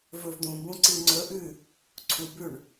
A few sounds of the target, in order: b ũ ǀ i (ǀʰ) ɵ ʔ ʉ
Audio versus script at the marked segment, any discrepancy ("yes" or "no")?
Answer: yes